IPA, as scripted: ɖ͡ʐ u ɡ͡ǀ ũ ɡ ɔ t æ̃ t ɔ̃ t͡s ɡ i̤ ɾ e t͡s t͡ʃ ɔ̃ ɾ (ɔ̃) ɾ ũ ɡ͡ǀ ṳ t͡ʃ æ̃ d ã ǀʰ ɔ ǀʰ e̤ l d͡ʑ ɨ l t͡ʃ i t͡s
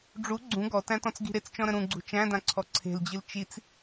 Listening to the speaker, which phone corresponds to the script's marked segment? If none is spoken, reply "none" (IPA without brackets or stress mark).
ə̃